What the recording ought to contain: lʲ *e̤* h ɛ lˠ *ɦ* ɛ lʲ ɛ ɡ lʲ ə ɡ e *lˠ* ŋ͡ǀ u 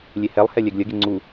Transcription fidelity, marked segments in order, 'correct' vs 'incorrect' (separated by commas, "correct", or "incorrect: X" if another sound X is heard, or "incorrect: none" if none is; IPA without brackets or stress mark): incorrect: e, incorrect: h, incorrect: none